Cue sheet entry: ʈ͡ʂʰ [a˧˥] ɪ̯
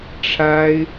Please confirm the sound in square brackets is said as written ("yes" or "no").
no